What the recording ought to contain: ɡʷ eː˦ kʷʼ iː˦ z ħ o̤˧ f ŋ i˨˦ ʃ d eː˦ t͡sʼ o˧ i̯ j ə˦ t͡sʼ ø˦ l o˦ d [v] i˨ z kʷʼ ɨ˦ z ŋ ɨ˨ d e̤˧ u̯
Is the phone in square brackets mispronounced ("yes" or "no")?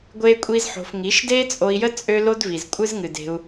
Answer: no